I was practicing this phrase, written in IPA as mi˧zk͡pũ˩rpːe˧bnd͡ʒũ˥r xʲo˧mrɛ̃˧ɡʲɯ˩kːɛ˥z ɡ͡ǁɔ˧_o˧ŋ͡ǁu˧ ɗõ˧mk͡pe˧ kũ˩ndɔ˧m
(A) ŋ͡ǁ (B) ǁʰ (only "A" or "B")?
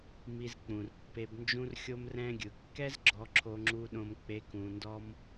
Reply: B